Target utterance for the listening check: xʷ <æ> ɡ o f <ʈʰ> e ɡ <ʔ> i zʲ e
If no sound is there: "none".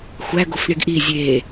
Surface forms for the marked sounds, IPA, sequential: æ, ɳ, ʔ

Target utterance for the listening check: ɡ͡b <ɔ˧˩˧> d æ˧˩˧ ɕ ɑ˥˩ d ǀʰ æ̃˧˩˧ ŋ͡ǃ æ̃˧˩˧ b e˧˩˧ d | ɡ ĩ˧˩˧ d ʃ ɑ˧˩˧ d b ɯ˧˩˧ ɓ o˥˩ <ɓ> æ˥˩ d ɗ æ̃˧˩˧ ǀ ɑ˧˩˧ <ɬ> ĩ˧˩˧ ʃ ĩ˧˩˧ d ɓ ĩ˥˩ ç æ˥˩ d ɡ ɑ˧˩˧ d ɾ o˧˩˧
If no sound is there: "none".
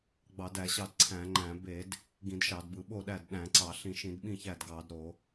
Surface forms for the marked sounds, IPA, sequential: ɑ˧˩˧, ɗ, ɬ

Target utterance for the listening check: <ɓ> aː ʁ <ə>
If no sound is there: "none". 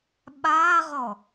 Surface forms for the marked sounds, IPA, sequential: ɓ, ɔ

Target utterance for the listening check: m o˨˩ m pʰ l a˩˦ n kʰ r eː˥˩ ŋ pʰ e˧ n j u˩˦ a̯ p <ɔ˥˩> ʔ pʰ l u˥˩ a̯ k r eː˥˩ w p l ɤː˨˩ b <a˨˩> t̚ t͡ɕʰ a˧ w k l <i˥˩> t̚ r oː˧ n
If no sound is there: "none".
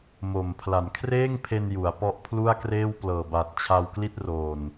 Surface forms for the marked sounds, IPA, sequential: ɔ˦˥, a˨˩, i˥˩

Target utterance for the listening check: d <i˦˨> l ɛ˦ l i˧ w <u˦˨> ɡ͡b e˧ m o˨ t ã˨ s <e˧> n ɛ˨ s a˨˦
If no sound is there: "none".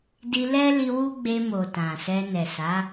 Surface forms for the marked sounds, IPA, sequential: i˧, u˦, ɛ˧

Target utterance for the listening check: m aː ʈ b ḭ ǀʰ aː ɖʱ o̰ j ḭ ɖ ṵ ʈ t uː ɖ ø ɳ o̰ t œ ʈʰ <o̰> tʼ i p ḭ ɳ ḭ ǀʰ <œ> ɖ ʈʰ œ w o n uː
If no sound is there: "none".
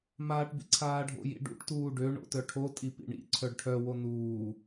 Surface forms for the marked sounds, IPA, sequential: o, œ

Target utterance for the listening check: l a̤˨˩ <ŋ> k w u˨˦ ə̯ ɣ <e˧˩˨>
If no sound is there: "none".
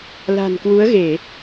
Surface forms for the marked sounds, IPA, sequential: n, e˧˩˨

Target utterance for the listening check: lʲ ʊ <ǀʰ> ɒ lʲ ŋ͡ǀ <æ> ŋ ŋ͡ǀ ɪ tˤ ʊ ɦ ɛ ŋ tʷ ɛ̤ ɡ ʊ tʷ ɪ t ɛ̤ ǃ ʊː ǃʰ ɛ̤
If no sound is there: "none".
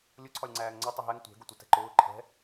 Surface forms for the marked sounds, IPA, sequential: ǀʰ, æː

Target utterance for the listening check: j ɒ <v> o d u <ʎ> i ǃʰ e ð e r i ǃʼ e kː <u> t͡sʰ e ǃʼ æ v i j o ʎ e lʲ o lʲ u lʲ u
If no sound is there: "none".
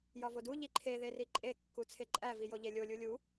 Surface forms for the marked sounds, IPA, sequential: v, ʎ, u

